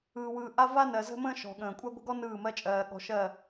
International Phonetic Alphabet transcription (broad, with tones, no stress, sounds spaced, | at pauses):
ɯː˨ w ɯː˨ ʔ a˦ v a˦ n ɜ˨ z ə̤˦ m ə̃ː˦ ʃ ɔ̤˨ ɠ ə̃ː˨ kʷʼ a˦ ɡʷ ə̤˦ ɡ ɔ˦ n ɯː˦˨ m ɜ˦ t͡ʃʼ ɜː˨ ɠ ɔ̤˨˦ ʃ ɜ˦˨